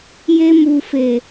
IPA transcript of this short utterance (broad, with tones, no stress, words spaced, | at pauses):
je˧mu˨fe˨